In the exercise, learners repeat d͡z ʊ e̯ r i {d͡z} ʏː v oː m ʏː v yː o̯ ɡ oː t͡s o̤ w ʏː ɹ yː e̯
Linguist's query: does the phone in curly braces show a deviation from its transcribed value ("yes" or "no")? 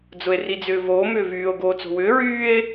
no